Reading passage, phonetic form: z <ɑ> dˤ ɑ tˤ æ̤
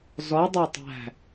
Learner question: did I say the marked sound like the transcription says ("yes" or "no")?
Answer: no